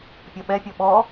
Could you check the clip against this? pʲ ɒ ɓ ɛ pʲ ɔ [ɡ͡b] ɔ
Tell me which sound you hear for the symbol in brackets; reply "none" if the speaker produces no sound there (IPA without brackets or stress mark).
ɓ